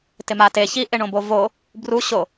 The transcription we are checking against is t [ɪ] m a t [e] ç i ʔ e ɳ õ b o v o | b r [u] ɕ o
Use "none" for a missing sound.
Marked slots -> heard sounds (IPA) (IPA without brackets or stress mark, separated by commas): ɪ, e, u